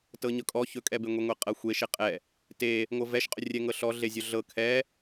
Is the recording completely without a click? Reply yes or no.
yes